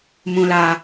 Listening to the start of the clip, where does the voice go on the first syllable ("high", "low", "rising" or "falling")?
high